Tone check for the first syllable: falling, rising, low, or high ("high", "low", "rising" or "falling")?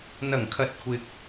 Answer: low